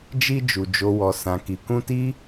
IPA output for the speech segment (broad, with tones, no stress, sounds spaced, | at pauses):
d͡ʒ i˧ d͡ʒ u˨ d͡ʒ o˨ w ɔ˨ s ã˨ k i˨ k ũ˧ t i˦